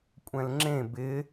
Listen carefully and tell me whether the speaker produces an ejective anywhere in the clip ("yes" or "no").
yes